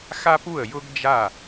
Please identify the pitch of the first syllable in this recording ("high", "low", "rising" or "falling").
high